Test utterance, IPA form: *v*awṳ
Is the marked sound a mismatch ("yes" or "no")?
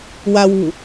yes